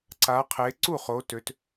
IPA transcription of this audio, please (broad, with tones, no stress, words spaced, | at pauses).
ǀa˩˧qʰe˩˧ǀu˥˩χo˩˧ tø˩˧t